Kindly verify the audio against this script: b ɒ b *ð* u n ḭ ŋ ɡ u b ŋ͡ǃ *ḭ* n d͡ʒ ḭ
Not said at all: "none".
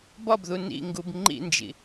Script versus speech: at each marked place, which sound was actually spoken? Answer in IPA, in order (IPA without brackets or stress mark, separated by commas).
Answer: ð, ḭ